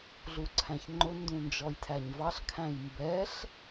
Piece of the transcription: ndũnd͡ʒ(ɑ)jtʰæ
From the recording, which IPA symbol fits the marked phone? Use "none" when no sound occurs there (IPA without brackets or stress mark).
ɔ